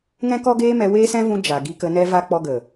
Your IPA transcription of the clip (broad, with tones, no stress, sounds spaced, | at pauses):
ŋ ɛ̃˦ k ɔ˦ ɡ eː˦ m ɛ˧ w eː˦ s ɛ̃˦ v ũ˧ d͡ʒ a˨ ɡ i˧ k ə˧ n ɛ˧ v a˧ k͡p ɔ˧ ɡ ə˨